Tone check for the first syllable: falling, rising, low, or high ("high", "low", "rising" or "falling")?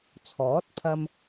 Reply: rising